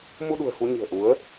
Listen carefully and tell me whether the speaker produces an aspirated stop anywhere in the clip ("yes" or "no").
no